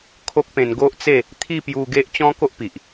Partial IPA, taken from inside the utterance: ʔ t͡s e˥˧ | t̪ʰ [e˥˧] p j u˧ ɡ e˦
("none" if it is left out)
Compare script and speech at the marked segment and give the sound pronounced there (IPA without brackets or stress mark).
i˥˧